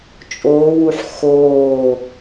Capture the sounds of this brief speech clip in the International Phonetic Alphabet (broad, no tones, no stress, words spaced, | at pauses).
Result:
t͡ʃʼoːwuħ xoː